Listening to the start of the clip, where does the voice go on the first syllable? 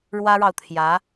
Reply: high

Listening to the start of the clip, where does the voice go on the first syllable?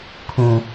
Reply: low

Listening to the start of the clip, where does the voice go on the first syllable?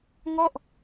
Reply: falling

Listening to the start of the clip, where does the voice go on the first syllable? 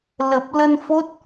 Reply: low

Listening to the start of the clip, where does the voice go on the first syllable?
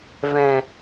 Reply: low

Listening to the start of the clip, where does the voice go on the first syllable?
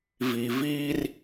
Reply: low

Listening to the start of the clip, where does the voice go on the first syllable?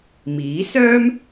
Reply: rising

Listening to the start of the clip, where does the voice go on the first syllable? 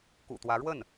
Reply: low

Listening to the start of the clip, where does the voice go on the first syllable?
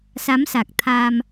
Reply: rising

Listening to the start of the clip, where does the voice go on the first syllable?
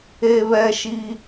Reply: high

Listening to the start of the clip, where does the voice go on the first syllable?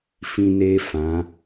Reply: high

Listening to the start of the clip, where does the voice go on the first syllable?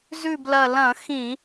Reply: falling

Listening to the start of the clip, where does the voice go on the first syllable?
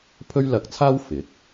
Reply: high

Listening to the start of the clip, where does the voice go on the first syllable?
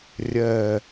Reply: low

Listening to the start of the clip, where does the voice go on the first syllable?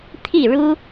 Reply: falling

